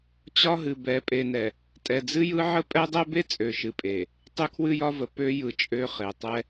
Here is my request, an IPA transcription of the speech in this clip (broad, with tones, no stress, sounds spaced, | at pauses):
t͡ɕ ɒ˦ ɦ ɨ˨ b ɛ˨ pʼ e˨ n ɛ˨ | tʼ ɛ˨ d͡z ɨ˦ j ɯ˦ ʕ ə˦ pʼ ɛ˦ dˤ ɛ˦ b e˦ t͡sʼ ø˨ ʃ ɨ˨ pʼ e˨ | tˤ ø˦ kʰ w ɨ˦ j ɒ˦ v ə˨ p ø˦ j ɯ˨ t͡ʃʼ ø˦ χ e˨ tˤ ɛ˦